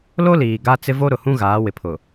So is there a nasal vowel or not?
yes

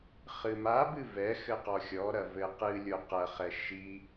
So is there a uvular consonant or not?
yes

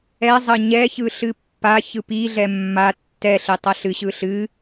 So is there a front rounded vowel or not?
no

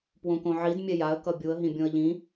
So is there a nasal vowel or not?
yes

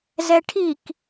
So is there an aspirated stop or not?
yes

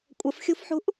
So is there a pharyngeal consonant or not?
yes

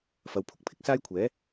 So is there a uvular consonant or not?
no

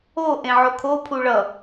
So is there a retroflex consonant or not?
yes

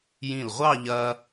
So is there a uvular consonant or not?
yes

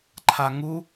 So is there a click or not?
yes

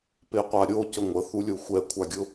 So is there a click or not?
no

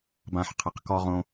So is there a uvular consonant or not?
yes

